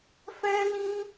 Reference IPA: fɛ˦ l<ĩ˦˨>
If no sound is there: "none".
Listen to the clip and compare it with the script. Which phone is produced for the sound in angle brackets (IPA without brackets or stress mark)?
ĩ˦